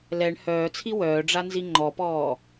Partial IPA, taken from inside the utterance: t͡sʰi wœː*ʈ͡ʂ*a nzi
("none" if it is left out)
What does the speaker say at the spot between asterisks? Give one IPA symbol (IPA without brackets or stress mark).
ɖ͡ʐ